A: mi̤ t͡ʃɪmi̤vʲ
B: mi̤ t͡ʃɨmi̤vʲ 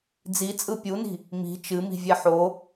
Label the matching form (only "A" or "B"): B